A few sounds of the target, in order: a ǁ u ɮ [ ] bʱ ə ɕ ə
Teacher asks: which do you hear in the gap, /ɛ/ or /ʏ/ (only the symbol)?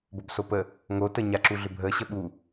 ʏ